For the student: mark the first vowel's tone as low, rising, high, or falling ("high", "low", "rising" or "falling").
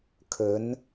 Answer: rising